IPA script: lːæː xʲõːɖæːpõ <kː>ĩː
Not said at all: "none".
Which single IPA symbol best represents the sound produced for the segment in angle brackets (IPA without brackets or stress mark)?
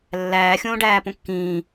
kː